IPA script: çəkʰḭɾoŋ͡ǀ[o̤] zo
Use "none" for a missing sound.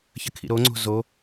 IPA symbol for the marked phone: o̤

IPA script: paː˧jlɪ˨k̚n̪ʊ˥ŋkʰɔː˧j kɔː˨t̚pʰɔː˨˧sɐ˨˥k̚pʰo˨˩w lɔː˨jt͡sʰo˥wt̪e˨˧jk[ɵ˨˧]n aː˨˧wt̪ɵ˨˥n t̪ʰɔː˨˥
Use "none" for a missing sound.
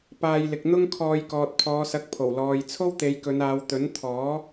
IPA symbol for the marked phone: ɵ˨˧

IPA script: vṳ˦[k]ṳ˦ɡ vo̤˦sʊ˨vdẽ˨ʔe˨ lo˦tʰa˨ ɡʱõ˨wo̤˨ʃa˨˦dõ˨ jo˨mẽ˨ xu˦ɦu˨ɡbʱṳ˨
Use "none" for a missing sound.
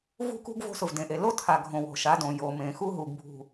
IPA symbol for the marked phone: k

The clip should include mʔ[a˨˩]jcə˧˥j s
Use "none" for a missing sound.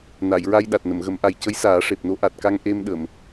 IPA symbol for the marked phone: a˨˩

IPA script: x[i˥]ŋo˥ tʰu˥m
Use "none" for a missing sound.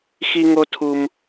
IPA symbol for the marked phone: i˥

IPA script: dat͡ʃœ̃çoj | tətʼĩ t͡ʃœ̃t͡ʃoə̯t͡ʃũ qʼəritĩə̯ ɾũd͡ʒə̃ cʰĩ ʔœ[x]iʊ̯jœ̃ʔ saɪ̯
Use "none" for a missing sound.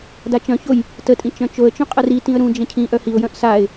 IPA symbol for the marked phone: h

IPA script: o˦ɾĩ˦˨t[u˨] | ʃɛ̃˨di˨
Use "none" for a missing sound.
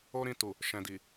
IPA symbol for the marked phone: u˨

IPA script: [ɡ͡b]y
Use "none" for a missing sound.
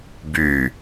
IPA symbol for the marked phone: b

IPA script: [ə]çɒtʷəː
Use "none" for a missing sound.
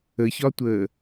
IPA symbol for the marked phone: ə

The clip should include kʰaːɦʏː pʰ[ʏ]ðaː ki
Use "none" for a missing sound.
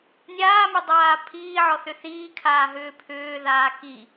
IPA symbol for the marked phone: ʏː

